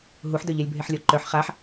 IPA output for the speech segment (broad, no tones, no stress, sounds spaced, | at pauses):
ɦ u ħ d œ ʎ ɛ lʲ bʱ e ħ lʲ ɔ ǃ œ ħ χ a ħ